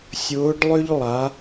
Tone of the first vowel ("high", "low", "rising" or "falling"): rising